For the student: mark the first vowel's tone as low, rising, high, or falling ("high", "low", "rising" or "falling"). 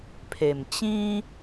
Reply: low